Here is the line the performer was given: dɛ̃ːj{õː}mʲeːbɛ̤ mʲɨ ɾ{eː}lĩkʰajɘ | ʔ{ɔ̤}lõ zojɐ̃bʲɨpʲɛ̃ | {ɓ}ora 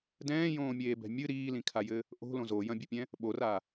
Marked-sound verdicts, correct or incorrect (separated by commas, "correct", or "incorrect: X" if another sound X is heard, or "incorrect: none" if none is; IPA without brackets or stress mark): correct, incorrect: iː, incorrect: o̤, correct